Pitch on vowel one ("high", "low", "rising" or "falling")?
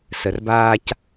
low